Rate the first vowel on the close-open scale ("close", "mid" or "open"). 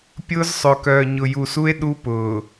close